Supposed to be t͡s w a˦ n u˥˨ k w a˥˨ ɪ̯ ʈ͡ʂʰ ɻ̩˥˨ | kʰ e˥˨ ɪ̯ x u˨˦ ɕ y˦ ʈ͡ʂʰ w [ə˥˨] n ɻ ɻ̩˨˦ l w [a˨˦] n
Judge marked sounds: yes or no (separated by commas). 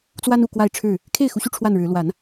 no, yes